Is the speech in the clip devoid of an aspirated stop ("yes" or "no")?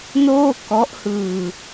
yes